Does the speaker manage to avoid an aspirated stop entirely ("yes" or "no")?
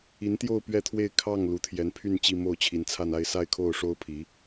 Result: no